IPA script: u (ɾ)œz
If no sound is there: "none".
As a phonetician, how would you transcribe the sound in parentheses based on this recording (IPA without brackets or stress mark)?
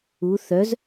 θ